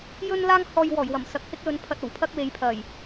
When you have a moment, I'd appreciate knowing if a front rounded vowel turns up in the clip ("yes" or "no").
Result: no